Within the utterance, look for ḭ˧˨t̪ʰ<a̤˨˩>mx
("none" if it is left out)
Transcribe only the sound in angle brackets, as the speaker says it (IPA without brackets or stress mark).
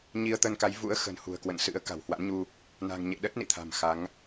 a̤˨˩